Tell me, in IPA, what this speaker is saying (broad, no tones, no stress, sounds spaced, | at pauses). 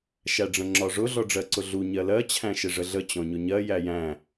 ʃ æ ɖ͡ʐ ə̃ ŋ͡ǁ ɒ ʐ ʊ ɮ ɔ ɖ͡ʐ ɜ ǀ ʊ ɮ u ɲ ɜ l ɜ t͡ɕʰ æ̃ ʃ ɪ ʐ ə ɮ ə t͡ɕ ɔ̃ ɲ ʊ ɲ ɜ j æ j æ̃